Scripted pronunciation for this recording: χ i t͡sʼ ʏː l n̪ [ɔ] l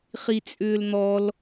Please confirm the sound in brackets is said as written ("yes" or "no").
yes